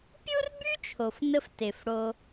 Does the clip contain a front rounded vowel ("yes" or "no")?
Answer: yes